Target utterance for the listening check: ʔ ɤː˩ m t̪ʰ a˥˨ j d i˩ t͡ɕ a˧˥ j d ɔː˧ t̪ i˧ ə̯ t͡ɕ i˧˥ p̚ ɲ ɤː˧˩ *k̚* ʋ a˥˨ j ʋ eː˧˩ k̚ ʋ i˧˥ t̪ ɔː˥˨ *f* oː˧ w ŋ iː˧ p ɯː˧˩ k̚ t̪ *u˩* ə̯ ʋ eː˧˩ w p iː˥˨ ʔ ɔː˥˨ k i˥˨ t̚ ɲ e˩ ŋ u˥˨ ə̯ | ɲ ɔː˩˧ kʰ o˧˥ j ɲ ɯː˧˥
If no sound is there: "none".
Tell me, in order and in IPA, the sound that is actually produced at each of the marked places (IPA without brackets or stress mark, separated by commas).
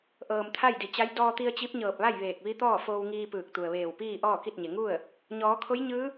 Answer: p̚, f, u˩